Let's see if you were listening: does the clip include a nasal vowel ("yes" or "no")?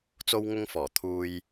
no